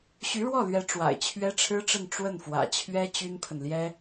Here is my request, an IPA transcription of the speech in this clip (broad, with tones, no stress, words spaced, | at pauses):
ɕy˧˥ɻwɔ˥˩lɥɛ˧˥ ʈ͡ʂwa̰˨˩ɪ̯t͡ɕʰɥɛ˥ʈ͡ʂʰɻ̩˥ʈ͡ʂə˥˧n ʈ͡ʂwə˥˩nfwä̰˨˩t͡ɕʰɥɛ˥ t͡ɕy˥npʰə˨nljɛ˥